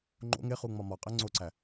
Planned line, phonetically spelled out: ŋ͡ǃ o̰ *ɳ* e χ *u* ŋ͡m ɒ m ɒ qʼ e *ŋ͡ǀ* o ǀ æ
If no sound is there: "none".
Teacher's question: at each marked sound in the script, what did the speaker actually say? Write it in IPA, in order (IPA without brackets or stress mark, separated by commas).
ŋ, u, ŋ͡ǀ